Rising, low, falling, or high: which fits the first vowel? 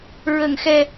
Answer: low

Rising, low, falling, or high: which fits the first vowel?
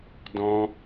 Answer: high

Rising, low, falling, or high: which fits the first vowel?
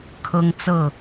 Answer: high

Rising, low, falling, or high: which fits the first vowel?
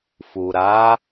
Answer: low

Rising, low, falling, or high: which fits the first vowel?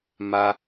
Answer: high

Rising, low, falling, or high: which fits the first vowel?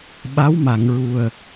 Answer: rising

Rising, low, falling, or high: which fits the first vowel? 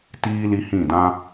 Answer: high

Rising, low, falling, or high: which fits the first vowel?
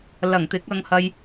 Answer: low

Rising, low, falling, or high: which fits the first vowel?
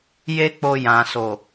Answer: high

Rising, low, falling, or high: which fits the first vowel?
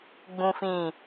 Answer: low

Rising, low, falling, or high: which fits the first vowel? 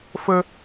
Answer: high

